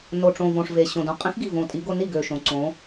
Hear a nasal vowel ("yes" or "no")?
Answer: yes